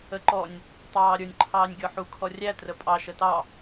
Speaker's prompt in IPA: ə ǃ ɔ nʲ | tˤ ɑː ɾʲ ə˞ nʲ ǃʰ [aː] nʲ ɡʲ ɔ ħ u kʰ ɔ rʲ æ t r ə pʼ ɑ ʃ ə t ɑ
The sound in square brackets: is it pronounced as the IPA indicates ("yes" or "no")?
no